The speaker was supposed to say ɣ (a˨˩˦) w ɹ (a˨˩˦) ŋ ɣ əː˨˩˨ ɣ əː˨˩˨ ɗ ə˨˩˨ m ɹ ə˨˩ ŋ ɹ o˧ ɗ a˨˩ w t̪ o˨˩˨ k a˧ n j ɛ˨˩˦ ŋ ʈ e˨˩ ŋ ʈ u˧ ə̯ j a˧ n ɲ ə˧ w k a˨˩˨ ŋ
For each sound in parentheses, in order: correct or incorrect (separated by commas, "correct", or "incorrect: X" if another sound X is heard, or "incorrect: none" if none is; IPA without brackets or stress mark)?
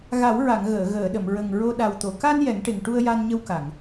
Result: correct, incorrect: a˨˩˨